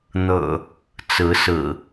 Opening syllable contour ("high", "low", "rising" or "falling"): low